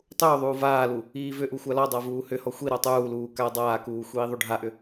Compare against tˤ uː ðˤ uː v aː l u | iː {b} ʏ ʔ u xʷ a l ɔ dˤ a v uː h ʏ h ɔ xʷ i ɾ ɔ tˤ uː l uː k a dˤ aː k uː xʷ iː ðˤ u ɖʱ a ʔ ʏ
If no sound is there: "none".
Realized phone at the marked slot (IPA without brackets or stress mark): v